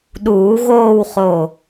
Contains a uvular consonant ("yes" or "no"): yes